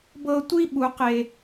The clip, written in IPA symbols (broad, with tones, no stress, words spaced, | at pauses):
bɤ˧tʷi˦ ɓu˨qe˨